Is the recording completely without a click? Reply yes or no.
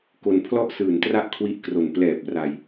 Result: yes